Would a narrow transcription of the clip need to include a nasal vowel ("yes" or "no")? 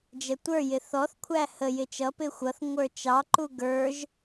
no